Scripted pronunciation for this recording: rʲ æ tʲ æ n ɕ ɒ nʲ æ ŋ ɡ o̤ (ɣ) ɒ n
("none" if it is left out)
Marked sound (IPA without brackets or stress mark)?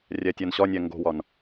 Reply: w